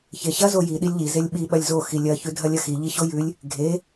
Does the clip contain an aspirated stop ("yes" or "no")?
no